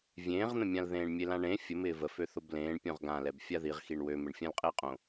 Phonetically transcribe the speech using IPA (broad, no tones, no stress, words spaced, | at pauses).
vʲẽːʁn̪ə̃mʲãl ðẽːɳmʲelãɳẽ fʲəmɪː vəfø θoblẽːɳ pʲõʁɡãlɛb fʲaðiʁ xiɳwømɪɳ fʲãlqʼɪːqʼõ